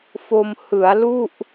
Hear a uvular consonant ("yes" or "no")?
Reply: no